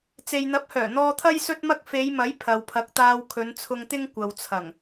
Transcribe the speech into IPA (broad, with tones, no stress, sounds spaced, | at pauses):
t͡s e˨ j n̪ ɐ˨˥ p̚ h œː˨˩ n̪ ɔː˧ t̪ʰ ɐ˥ j s ɵ˥ t̚ m ɐ˥ k̚ f e˨˧ j m ɐ˨˥ j pʰ ɐ˨ w pʰ ɐ˨˥ k̚ t̪ aː˧ w kʰ ɵ˨˧ n t͡sʰ ʊ˧ ŋ t̪ ɪ˥ ŋ kʷ ɐ˨ w t͡sʰ ɐ˨˩ ŋ